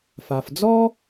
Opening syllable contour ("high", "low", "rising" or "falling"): low